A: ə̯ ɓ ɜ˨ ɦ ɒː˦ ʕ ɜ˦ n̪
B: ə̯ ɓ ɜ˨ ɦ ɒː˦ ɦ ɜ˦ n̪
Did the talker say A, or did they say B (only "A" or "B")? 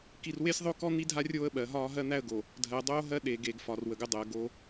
B